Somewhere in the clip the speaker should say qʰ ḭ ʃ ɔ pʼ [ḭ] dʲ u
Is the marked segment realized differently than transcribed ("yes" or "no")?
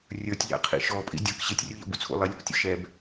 no